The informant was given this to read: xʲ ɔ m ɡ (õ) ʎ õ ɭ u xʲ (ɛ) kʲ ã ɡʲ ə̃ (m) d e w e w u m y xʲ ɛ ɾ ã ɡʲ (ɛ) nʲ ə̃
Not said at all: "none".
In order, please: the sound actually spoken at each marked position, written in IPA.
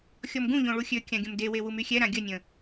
ũ, ø, m, ə

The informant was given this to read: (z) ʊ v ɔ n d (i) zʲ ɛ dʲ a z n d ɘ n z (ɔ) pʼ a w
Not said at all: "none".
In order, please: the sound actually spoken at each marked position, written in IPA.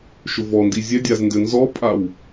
ʃ, i, ɔ

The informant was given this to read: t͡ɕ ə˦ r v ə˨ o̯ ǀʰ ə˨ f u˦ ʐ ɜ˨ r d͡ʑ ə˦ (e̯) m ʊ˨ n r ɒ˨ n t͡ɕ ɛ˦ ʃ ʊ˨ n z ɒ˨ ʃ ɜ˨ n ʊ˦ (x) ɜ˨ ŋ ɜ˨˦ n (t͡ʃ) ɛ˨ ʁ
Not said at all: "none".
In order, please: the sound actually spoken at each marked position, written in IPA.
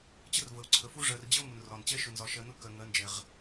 o̯, k, d͡ʒ

